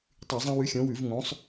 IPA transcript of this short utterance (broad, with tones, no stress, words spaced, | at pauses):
tˤʉ˧˩˧zˤã˦ wʉ˨˦xʲõ˨˦wʉ˧˩˧v ŋõ˨˦sˤ